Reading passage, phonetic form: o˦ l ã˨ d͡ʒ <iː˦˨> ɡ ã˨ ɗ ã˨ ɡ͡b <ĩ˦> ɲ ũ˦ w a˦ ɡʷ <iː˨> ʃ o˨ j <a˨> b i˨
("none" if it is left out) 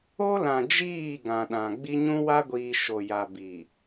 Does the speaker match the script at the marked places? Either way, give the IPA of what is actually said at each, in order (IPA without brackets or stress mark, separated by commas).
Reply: iː˦˨, i˦, iː˨, a˨